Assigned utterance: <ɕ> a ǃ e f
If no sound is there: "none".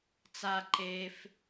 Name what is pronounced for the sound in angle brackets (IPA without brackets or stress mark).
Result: t͡s